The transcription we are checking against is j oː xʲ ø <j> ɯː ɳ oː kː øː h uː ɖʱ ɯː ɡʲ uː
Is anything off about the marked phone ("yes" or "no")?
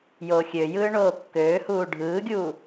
no